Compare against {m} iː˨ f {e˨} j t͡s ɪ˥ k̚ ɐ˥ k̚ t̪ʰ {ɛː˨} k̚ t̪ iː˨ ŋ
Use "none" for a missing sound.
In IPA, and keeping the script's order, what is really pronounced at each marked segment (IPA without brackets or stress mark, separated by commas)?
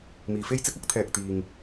m, e˥, ɛː˨